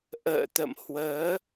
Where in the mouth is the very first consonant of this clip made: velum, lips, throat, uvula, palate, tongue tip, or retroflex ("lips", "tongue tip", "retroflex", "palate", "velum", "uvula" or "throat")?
throat